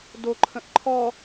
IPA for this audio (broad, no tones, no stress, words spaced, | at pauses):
doǃʰə̃ʔ ǃʰɔ